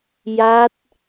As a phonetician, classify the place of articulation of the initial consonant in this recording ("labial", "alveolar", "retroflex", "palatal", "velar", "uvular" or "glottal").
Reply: palatal